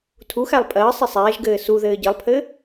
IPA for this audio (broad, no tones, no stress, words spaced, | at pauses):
tʰuxælˠ pʼɜ sˤisˤɛːʒɡɘː suðɘː ɟɘlˠpʰɘ